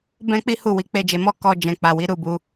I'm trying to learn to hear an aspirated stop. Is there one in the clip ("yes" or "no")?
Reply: no